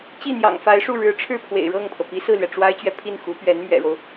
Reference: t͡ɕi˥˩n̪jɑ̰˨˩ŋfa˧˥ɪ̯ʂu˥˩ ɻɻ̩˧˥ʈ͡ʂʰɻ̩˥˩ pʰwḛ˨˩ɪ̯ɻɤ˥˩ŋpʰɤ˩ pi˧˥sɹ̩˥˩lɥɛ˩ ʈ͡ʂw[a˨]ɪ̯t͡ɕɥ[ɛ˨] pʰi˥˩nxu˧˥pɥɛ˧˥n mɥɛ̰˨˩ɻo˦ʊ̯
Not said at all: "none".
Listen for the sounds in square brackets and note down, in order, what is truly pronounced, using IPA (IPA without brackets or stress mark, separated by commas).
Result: a˥, ɛ˨